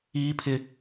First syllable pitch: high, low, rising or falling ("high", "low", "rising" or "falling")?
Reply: high